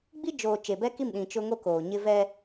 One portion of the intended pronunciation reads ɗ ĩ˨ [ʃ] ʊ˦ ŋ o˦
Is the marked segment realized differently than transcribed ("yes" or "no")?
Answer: yes